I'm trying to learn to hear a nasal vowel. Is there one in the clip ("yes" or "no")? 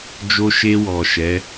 no